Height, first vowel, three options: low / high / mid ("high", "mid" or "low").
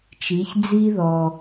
high